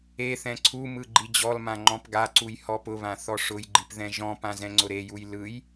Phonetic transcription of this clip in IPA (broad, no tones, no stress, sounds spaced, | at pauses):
e θ ɛ̃ ǀʰ u m ɯ ɡ͡ǃ i d͡ʑ ɔ l m ã ŋ͡ǃ ɔ̃ p ɡ a ǀ u j h ɔ p ʊ β ã θ ɔ ʂ ʊ j ɡ͡ǃ i p ð ɛ̃ ʒ ɔ̃ p ã z ɛ̃ ŋ͡ǀ ʊ ɾ e j u j l ɯ j